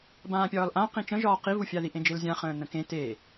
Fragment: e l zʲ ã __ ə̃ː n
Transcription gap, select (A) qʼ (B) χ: B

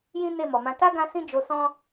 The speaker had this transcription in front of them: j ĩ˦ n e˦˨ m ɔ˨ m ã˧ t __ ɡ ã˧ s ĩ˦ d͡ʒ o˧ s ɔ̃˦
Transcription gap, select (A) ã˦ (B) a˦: B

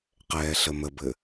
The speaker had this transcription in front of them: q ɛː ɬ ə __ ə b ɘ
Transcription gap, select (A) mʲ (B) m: B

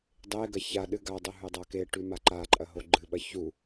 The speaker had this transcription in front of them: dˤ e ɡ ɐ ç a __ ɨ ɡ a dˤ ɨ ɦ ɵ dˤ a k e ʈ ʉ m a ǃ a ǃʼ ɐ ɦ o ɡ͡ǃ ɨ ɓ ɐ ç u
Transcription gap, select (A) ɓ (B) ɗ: B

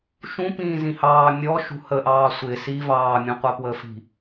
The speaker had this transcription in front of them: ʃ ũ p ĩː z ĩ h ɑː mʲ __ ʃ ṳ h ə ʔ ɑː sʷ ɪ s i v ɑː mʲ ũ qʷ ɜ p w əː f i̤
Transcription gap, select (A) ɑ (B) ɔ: B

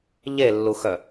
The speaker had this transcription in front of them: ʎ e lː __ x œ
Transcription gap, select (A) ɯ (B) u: B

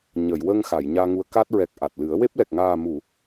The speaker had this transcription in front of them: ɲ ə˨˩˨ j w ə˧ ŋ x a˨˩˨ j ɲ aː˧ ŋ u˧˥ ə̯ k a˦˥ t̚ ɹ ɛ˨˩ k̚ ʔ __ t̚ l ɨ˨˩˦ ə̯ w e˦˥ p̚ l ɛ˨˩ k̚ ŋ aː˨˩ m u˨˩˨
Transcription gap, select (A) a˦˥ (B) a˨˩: B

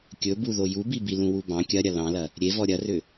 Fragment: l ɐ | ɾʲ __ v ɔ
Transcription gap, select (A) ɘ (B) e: B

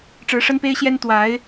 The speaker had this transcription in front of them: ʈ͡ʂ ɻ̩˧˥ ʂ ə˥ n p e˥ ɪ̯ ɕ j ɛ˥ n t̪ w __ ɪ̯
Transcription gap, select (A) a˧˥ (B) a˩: A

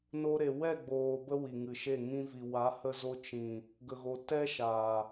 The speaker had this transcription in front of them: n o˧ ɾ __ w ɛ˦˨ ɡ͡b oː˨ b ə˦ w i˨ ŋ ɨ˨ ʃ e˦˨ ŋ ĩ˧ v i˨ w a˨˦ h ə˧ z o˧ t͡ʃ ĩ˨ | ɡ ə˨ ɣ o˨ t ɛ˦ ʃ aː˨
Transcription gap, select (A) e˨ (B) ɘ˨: A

